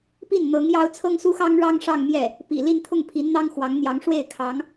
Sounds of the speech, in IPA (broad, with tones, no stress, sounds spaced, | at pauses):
p i˥˩ n n̪ ɤ˧˥ ŋ j ɑ˥ ʊ̯ t͡sʰ ɤ˥ ŋ s u˥ x ɑ˥ ŋ ɻ ɑ˥ ŋ ʂ ɑ˥˧ ŋ m j ɛ˥˩ | p ḭ˨˩ l i˥˧ n t̪ʰ ʊ˥˩ ŋ pʰ i˧˥ n n̪ ɑ˥ ŋ x w ɑ˧˥ ŋ n̪ j ɑ˧˥ ŋ ʂ w e˥˩ ɪ̯ kʰ ɑ˧˥ ŋ